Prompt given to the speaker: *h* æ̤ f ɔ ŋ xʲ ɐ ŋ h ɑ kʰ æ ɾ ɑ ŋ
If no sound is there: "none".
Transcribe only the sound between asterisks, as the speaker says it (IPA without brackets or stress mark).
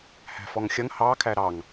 h